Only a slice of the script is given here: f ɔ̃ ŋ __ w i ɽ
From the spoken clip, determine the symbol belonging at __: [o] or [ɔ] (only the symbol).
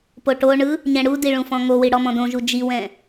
o